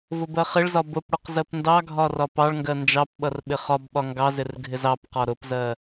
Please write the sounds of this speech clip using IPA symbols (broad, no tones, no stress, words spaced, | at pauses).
vʊbɜχɪɭzɒ bʊpɽʊq zɜpndɑɡʱɒ rɒpɑɭŋɡɜ nd͡ʒɑp ɓʌrɓɪχɒbɓɒ ŋɡɑzɪr ɡʱɪzɑpqɒ ɾʊpzɜ